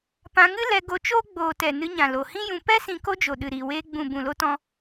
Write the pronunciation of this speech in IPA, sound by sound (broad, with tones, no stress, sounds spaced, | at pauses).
p ã˧ ŋ ɨ˦ l ɛ˧ ɡ o˧ t͡ʃ oː˦ ɡ͡b oː˨ t ɛ˨ n ɨ˧ ɲ ã˨ l o˨ h ĩ˦ j ũ˧ p ɛ˦ s ĩ˧ k o˦ d͡ʒ o˨ ɗ ɨ˨ ɾ iː˨ w eː˧ ɡ͡b ũ˨ b ũ˨ l o˧ t ɔ̃˧